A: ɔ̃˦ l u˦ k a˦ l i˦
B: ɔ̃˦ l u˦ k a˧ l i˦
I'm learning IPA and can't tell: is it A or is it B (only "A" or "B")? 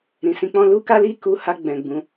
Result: A